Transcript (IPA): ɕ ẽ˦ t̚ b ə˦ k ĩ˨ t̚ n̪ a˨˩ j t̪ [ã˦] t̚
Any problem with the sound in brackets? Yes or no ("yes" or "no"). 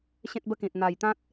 no